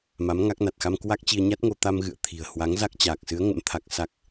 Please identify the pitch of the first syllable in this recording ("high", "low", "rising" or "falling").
rising